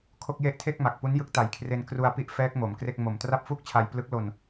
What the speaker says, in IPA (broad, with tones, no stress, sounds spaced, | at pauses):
kʰ o˥˩ k̚ j e˥˩ ʔ tʰ e˥˩ k̚ m a˨˩ k̚ p u˦˥ n j ɯ˦˥ k̚ t a˨˩ j kʰ r e˧ n k r u˧ a̯ p i˥˩ ʔ f ɛː˦˥ k̚ m o˩˦ m k r e˥˩ k̚ m o˨˩ m t r a˥˩ p̚ f uː˥˩ k̚ t͡ɕʰ a˧ j p l ɯ˦˥ k̚ l o˧ n